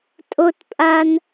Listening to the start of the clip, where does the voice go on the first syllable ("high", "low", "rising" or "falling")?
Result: high